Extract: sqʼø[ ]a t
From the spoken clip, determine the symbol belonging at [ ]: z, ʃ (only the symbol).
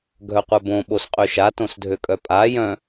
ʃ